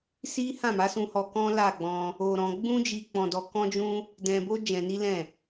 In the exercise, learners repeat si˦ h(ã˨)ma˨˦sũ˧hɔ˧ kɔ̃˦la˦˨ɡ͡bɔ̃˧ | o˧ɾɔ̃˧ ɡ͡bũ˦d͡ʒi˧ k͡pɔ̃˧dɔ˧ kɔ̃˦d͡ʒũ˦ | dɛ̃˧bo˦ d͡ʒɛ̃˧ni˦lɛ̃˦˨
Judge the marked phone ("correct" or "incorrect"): incorrect